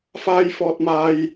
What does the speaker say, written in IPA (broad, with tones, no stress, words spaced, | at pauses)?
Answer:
faː˧jfɔː˧t̚maː˧j